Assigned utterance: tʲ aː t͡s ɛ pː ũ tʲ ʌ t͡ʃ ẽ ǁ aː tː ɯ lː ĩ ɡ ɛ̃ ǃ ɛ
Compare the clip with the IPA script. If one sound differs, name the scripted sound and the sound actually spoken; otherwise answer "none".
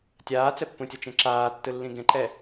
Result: none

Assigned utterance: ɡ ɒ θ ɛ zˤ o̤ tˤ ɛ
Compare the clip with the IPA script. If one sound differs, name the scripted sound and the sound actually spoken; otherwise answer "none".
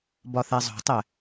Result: ɡ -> b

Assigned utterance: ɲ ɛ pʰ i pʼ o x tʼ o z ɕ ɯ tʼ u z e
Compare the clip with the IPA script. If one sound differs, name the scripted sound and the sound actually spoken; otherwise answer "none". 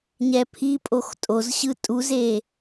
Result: none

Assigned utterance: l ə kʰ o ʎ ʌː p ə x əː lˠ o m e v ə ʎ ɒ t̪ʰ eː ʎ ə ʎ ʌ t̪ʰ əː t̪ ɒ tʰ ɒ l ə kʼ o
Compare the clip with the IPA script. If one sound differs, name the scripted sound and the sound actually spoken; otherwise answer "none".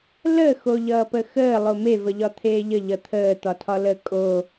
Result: kʰ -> x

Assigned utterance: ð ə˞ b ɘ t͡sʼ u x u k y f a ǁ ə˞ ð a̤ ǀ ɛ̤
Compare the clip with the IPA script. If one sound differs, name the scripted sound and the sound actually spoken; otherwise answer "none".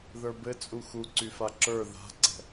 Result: k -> ǀ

